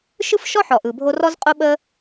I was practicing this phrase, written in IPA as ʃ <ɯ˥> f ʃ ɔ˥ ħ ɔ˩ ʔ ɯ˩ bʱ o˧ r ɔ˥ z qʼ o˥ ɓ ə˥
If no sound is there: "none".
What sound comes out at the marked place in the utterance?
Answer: ɯ˥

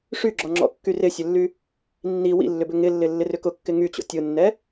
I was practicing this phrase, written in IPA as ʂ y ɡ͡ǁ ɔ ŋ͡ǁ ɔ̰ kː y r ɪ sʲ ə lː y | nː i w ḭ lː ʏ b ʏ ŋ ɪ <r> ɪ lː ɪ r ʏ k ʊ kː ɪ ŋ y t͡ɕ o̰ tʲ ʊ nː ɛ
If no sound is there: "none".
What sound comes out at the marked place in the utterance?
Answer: lː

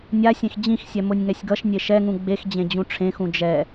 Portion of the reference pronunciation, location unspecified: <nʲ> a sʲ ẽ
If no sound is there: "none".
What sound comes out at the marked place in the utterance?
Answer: nʲ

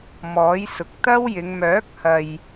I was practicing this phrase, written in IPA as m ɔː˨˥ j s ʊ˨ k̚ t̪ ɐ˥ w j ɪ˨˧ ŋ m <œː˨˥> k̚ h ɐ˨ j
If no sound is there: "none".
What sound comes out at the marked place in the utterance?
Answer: œː˨˥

